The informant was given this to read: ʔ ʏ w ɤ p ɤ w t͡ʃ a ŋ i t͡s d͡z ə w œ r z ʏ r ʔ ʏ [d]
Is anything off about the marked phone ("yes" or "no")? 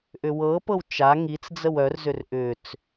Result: yes